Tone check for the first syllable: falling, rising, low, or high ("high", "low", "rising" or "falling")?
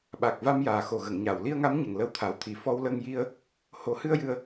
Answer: low